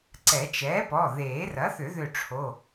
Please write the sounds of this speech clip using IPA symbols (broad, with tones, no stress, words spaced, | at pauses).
ǀɛ˨˩˦t͡ʃɛː˩˥pɔ˩˧˩ ðeː˨˩˦rɐ˩˥θʏ˨˩˦ ðʏ˧˩ʈ͡ʂʰo˩˧˩